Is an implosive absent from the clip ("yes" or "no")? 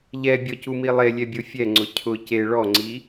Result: yes